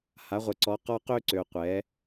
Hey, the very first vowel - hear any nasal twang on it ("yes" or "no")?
no